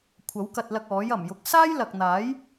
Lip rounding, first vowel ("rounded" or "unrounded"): unrounded